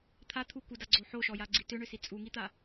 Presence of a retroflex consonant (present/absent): present